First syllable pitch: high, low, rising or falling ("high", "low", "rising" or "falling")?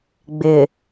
low